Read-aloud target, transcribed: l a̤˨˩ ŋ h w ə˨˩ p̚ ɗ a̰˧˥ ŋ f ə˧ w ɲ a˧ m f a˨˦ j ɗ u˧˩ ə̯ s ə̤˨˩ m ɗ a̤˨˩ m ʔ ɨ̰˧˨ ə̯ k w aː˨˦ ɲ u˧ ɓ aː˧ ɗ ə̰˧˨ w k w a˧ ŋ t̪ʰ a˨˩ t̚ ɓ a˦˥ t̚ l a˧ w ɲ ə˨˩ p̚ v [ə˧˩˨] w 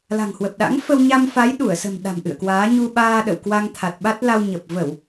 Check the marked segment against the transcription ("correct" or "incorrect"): correct